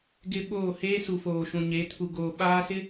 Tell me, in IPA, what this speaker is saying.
ɡɪ˦ɓoː˦˨ heː˦su˨ foː˨ʃũ˨ɲe˨˦ tʰu˨ ɡoː˨ ɓaː˦sɪ˦

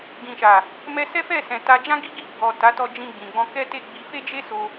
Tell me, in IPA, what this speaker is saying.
ɡĩ˨ʃa˨ | mɛ˧ sɛ˦fɛ˦˨sɛ̃˨ ta˨d͡ʒã˧ɡi˧ ɡi˧ɡ͡bɔ˨ ta˨˦tɔ˧ d͡ʒĩ˧ɡ͡bĩ˨ɡ͡bɔ̃˧ kɛ˦te˦˨ɡ͡bi˧ fe˦d͡ʒe˦ so˧

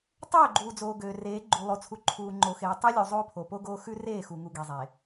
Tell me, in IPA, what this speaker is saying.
tˤøː˦˨ɡ͡ǃuː˨d͡zoː˨ ɡøː˨reː˨˦ ɡ͡ǃu˨lˠo˨t͡sʰu˨ ǃʰuː˨ŋ͡ǃo˨xeː˨ tˤø˦lʲu˨ zˤoː˦pʰo˨po˦ɡoː˦ xʉ˦reː˦˨xu˨ŋu˨ ɡe˨zˤe˨

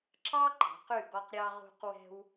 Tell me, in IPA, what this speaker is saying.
ǁɑ˥ǃɑ̤˩˧qʉ˧˩ɡɔ˧q ɾʲɑ˧ʁṳ˧qwɛ̤˧w

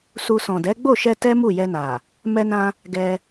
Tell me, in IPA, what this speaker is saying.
su˧ sɔ̃˨ dɛ˨˦ɡ͡bo˦˨ʃɛ˧ tɛ˦ mu˦˨jɛ˧na˨ | mɛ˧nã˧ | ɡɛ˧

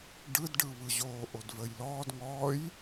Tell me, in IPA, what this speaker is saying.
ɖɯdɖɯβɯ ʑoːʔodvəːjlɔːd ŋɔːj

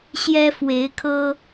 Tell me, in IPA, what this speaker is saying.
ɕjɛ˦fwe˨˦ɪ̯kʰɤ˦

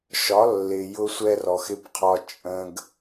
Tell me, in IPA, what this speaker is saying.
ʃɒ˨˦lːɪ˨ jʊ˦sʷɛ˦rɔ˨x ɪ˦bqʰɒ˦ t͡ʃʼə̃˦ɡ

